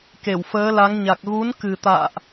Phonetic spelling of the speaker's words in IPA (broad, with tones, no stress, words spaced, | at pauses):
ke˧˩wfəː˨˦la˨˦ŋɲa˨˩k̚ ɣu˨˦nkɨ˨˩t̪a̰ː˧˨ʔ